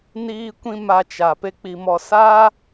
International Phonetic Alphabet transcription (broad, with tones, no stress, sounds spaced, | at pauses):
n iː˧ kʷ ĩ˧ m a˧ t͡ʃ a˨ p e˦ k͡p i˧ m ɔ˧ s aː˦